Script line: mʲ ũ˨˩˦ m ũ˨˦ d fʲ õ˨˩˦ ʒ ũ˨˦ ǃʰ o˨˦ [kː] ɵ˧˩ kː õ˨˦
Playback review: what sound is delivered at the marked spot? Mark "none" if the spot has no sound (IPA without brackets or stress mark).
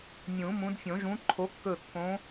kː